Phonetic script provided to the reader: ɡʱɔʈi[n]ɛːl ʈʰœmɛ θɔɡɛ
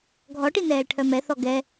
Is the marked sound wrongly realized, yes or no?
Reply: no